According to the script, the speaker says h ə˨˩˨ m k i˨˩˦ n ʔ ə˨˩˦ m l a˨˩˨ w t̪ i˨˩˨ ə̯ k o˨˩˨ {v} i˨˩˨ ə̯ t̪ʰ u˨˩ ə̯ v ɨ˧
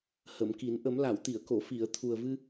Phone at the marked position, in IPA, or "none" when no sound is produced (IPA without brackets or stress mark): f